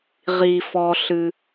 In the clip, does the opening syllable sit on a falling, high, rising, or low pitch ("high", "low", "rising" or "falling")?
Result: low